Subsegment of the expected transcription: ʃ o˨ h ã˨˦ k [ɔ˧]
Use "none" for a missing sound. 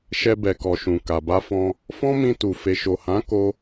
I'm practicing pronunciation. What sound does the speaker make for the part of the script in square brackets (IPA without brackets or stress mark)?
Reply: o˧